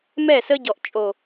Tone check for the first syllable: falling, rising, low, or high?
falling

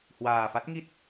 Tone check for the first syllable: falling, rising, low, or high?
low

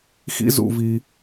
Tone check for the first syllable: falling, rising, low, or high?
high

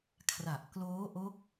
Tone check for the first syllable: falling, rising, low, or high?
low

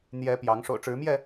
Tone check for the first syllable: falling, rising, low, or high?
rising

